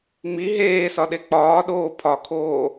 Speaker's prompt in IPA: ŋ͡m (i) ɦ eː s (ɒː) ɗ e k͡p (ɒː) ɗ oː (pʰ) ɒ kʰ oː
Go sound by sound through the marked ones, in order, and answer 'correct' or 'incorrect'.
correct, incorrect: ɒ, correct, correct

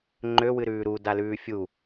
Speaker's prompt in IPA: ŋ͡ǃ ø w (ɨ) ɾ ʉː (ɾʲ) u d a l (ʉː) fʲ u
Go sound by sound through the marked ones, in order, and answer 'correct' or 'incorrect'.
correct, incorrect: ɾ, correct

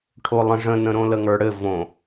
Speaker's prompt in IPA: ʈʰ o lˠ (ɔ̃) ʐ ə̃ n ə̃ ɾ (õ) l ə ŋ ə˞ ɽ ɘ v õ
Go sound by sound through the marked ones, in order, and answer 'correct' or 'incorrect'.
incorrect: ə̃, correct

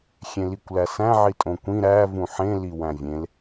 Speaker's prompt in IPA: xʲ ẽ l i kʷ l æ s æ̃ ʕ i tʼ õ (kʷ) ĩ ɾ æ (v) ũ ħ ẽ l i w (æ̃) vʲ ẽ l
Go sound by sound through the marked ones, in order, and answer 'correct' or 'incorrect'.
correct, correct, correct

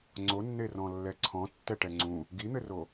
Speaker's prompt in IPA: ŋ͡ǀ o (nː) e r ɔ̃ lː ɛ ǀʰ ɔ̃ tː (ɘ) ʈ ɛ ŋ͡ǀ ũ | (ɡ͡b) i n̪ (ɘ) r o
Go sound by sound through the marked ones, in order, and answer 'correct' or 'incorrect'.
correct, incorrect: ɛ, incorrect: ɡ, correct

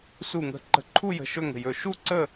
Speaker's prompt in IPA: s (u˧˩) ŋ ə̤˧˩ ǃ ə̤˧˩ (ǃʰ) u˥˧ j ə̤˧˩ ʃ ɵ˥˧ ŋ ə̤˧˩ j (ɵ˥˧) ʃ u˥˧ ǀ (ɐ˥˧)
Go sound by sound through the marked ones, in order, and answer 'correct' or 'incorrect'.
correct, correct, incorrect: ɵ˧˩, incorrect: ə˥˧

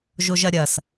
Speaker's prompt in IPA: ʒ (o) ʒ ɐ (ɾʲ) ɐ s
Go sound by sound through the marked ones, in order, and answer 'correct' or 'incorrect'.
correct, correct

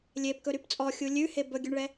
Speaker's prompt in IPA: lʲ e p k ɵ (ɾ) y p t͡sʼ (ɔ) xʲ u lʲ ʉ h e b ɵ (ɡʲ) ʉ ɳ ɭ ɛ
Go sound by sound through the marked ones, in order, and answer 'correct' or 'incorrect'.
correct, correct, correct

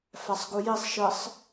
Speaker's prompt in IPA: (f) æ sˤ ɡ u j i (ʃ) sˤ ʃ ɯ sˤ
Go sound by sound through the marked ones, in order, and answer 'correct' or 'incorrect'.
correct, incorrect: none

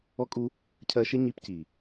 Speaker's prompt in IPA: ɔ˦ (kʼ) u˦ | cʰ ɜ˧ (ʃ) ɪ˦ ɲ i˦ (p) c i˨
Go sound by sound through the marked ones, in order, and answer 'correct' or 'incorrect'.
correct, correct, correct

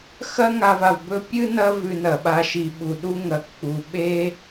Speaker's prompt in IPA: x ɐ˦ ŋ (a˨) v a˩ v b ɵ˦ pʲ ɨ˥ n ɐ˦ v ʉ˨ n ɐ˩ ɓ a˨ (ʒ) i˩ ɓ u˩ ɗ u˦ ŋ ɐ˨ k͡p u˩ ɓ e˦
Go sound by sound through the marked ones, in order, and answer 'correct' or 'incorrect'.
correct, incorrect: ʃ

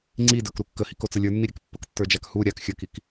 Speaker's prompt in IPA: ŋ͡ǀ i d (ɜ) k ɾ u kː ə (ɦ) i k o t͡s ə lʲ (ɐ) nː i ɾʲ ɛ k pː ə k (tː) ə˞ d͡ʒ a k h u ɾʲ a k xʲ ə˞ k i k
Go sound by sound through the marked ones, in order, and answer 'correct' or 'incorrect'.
incorrect: ə˞, incorrect: h, incorrect: ə˞, correct

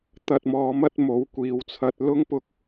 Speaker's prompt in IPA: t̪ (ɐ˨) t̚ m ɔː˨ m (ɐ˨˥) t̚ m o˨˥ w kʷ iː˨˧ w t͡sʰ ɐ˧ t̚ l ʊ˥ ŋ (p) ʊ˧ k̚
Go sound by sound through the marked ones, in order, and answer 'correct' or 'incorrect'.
correct, incorrect: ɐ˥, correct

